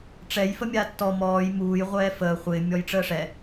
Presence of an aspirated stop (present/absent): absent